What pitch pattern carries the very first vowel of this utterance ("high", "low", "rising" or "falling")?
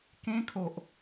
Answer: high